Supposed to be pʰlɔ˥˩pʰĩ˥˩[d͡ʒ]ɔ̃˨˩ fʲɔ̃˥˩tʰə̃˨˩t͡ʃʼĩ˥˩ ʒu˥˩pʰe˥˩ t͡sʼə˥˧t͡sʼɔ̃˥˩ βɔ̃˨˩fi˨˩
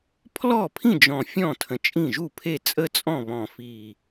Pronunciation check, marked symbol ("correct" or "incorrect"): correct